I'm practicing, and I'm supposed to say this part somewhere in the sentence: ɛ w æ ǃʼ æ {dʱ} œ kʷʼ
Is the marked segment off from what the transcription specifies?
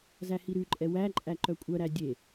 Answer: yes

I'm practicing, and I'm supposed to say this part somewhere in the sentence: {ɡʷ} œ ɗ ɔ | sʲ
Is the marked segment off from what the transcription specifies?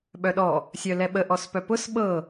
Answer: yes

